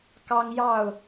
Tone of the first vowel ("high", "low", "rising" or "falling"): high